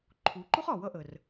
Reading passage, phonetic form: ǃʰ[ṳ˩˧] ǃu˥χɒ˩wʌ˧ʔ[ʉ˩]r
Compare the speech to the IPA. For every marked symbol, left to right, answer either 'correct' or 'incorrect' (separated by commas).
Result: incorrect, incorrect